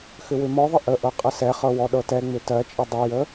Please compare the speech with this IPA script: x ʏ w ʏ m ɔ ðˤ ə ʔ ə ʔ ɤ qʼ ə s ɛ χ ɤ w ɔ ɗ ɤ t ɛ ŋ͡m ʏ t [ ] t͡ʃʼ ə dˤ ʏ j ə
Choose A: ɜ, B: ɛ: A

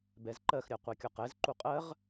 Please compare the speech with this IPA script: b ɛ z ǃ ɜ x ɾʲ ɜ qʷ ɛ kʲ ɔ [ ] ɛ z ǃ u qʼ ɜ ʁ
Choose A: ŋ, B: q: B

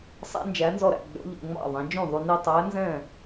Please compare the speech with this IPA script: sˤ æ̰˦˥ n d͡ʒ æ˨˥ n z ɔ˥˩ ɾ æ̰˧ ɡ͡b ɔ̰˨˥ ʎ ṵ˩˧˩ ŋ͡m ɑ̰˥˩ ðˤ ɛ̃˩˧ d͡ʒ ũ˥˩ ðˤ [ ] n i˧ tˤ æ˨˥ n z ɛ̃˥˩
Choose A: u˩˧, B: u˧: B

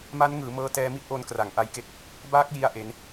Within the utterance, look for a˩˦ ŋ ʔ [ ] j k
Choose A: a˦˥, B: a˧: B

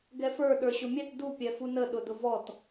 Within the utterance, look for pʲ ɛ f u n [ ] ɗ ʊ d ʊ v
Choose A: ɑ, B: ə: B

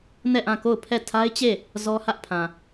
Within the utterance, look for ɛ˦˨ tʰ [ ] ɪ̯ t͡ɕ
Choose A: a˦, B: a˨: A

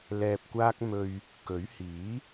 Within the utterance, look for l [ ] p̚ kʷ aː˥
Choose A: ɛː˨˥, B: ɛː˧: B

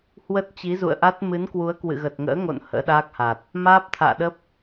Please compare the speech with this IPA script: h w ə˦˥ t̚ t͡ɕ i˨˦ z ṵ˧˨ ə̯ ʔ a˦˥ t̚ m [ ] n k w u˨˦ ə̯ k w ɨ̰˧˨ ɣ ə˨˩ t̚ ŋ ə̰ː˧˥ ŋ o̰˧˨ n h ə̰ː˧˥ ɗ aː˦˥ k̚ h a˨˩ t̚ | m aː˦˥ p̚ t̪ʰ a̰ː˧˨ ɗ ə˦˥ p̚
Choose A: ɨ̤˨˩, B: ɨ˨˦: B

